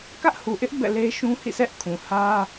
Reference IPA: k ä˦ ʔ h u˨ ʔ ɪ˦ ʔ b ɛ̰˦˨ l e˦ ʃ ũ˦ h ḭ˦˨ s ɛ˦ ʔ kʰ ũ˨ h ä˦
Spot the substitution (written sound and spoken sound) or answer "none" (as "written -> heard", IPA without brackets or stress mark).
none